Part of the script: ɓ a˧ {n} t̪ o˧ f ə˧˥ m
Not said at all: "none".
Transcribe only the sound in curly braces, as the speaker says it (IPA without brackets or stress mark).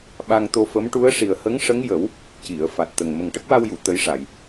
ŋ